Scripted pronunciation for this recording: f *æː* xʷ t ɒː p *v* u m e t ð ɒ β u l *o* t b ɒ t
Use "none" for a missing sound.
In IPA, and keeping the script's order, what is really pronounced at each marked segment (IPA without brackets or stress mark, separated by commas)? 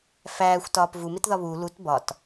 æː, v, u